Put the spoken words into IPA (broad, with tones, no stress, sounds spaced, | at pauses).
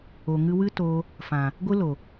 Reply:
o˨ ŋ ɨ˧ w ɨ˦ t oː˧ | f ã˨ | ɡʷ ɨ˦ l o˨